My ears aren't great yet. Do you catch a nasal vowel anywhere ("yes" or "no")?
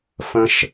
yes